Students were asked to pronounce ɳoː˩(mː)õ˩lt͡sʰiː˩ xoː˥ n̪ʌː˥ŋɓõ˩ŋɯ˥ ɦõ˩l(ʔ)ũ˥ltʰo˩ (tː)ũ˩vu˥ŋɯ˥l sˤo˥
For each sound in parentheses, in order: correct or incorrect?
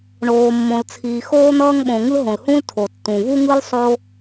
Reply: correct, incorrect: h, correct

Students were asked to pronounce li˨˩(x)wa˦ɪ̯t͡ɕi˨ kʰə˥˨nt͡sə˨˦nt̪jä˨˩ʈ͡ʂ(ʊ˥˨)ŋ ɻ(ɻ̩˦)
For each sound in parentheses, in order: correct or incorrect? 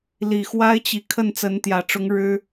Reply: correct, incorrect: ʊ˨˦, correct

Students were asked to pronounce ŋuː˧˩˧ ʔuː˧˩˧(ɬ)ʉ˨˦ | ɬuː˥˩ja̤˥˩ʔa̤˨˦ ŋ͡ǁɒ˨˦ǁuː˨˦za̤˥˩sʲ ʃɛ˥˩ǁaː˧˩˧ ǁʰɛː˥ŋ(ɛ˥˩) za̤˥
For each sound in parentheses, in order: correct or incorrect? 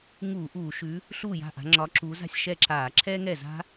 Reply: incorrect: ʃ, correct

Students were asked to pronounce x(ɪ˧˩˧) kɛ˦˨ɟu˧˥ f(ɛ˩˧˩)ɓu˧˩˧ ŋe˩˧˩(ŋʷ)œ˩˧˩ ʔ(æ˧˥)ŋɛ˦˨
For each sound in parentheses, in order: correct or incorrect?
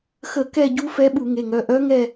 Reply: incorrect: ə˧˩˧, incorrect: ɛ˧˥, incorrect: ŋ, incorrect: œ˧˥

